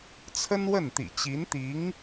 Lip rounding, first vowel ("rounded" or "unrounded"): unrounded